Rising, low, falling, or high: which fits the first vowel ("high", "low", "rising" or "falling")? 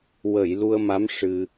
low